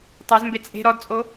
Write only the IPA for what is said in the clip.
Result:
tˤ œ z m b e t͡sʼ e̤ ɾ ɔ d t͡sʼ o

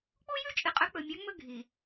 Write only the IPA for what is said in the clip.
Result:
k͡p u˦ j ʉ˦ t͡ʃʼ ɨ˨ qʼ ɵ˨˦ k͡p ɵ˨ mʲ a˨˦ ŋ͡m ɵ˦ ɡʱ i˨

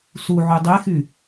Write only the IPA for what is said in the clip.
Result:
s u ʕ y dˤ e x y

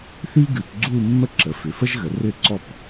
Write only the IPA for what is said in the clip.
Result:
θ i˥ ɡ ʉ˧˩˧ p ɡ͡ǀ u˥˧ mː ə˥˧ ǁ ə˩˧ f ʏ˩˧ f ə˥ ʒ ɣ ə˩˧ r ʏ˥˩ ǀ ɔ˥˧ p

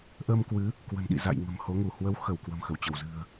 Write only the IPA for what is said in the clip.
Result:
ʔ əː˧ m k w ɨ˨˦ | k w ə̤˨˩ n ɗ ḭ˧˨ z a̰˧˨ j ŋ ə̤˨˩ m h o˨˦ ŋ u˧˩ h w ə˨˦ w x ə˧˩ w k w ə̤˨˩ m x ə˧˩ w t͡ɕ ə˧˩ w z ɨ̤˨˩ ə̯

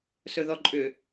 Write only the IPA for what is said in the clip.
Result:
s ɵ ð ɔ ǃʼ ʏ

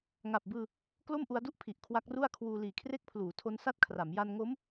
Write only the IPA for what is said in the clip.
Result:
ŋ a˨˩ p̚ b ɯː˧ | k l o˥˩ m ʔ u˦˥ a̯ d u˥˩ ʔ pʰ i˨˩ ʔ kʰ w a˦˥ k̚ r u˥˩ a̯ kʰ w uː˧ l iː˨˩ kʰ r e˦˥ k̚ pʰ l uː˩˦ tʰ o˦˥ n s a˥˩ t̚ kʰ r a˩˦ m j a˧ n ŋ o˦˥ m

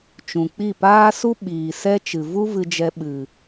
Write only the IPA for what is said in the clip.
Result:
t͡ʃ ũ˨ k͡p i˦˨ p aː˦ s u˦ ɓ iː˨ s ɛ˦ t͡ʃ ɨ˨ v u˦ v ɨ˧ d͡ʒ ɛ˧ ɓ ɨ˨

